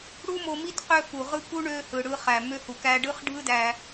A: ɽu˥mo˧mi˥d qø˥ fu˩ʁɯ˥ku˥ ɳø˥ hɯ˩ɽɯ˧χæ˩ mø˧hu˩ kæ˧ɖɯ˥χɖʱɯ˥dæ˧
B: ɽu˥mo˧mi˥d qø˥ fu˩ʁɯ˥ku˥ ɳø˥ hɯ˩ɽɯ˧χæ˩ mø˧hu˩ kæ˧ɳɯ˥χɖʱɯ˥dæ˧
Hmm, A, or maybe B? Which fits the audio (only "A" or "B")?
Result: A